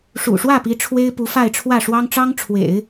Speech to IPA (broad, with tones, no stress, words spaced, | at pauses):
ʂṵ˨˩ʂwä˥˩pi˧˥ ʈ͡ʂʰwe˥ɪ̯pu˧˥fa˥˧ɪ̯ʈ͡ʂʰwä˥˩ ʂwɑ˥ŋ ʈ͡ʂɑ˥ŋʈ͡ʂʰwḛ˨˩˦ɪ̯